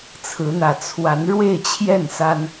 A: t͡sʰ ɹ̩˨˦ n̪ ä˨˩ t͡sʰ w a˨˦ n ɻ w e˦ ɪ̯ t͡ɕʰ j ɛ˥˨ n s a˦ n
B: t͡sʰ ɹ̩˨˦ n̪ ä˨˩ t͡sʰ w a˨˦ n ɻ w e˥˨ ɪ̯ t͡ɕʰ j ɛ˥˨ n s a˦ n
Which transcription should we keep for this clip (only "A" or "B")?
B